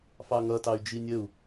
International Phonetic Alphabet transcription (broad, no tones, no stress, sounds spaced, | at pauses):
f ɑ ŋ ʌ t ɑ y̯ d͡ʒ i nʲ ə u̯